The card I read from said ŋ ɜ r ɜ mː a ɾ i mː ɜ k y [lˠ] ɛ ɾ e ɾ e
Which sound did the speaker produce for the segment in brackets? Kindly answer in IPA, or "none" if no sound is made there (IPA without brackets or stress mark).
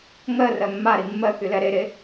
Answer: l